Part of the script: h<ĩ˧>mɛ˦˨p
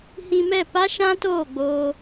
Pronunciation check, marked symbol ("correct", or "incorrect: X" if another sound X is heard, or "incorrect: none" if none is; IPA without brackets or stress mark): correct